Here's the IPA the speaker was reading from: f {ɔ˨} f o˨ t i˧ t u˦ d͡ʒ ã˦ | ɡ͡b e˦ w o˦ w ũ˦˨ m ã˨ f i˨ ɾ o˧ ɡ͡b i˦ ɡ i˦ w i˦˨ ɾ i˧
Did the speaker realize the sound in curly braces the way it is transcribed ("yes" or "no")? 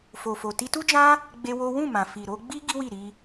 no